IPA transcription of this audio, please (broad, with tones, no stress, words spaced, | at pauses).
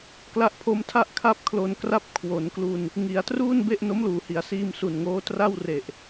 kla˦˥ʔpʰo˦˥mtʰa˥˩ʔ kʰa˥˩p̚kʰlo˧n kra˥˩p̚ kʰwo˩˦nklu˧n | ŋi˩˦a̯ truː˥˩nbe˥˩ʔ no˦˥mluː˩˦hi˩˦a̯siː˧m su˨˩nŋoː˦˥ tra˥˩wre˨˩ʔ